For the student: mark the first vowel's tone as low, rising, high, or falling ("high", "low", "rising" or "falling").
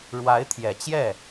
rising